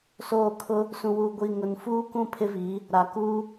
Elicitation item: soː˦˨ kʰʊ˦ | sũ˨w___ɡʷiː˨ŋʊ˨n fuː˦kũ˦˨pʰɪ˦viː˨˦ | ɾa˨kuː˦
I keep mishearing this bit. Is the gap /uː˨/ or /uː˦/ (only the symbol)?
uː˨